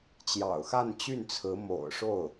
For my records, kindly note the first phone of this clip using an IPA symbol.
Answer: t͡ɕ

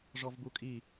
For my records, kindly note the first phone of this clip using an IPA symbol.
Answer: ʐ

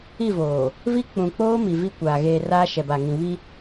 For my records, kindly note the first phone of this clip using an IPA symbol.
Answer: i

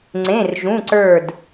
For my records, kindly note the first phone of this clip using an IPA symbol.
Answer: ŋ͡ǀ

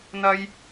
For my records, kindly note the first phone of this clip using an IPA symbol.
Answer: n̪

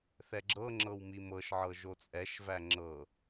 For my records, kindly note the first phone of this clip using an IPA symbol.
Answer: θ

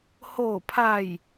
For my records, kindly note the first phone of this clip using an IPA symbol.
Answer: h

